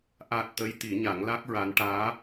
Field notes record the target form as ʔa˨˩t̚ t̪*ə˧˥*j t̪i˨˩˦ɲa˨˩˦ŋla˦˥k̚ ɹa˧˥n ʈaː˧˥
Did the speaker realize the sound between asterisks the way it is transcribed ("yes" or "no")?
yes